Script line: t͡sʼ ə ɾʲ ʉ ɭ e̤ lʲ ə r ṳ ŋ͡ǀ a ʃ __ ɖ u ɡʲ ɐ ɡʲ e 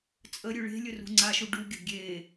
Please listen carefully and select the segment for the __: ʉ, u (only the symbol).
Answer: u